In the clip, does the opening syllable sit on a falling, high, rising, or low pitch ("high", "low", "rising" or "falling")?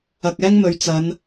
low